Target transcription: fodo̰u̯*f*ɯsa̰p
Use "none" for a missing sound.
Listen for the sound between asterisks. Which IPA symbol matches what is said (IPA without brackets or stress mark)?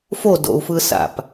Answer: f